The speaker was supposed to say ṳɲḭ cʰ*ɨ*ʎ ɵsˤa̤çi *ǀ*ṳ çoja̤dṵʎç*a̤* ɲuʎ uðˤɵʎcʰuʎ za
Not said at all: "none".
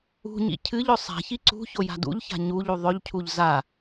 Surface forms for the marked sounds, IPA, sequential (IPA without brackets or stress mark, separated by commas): ɨ, ǀ, a̤